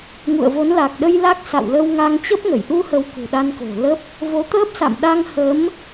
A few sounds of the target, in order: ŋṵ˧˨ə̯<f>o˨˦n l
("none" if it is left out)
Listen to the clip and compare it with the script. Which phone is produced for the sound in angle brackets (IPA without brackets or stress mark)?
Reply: v